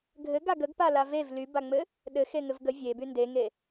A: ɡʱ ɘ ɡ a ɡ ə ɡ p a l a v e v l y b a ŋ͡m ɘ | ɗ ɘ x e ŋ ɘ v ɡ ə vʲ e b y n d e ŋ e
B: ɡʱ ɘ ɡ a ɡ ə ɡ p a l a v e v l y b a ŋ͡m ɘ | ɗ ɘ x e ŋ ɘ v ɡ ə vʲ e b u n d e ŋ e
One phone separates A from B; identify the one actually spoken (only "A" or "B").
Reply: A